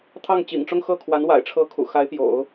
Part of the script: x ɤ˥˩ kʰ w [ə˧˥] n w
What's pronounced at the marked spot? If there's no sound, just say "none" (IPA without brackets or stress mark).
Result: a˧˥